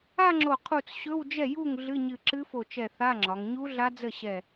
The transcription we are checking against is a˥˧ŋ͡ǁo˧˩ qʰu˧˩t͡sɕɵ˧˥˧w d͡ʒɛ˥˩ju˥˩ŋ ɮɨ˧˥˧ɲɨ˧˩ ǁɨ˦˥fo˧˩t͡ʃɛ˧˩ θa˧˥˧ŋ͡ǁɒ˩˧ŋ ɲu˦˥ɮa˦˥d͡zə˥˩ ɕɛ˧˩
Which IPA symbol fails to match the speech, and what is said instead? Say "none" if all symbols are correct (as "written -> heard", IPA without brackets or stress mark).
none